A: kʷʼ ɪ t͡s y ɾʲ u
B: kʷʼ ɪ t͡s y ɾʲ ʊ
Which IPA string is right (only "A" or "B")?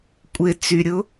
B